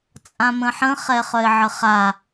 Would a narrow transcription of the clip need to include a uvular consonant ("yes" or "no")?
yes